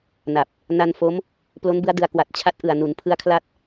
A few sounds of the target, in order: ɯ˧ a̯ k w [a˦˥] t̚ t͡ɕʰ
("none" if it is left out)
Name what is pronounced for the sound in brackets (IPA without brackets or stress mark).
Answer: a˨˩